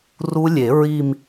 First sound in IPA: r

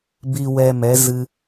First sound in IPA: b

